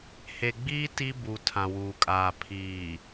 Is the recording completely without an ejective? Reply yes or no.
no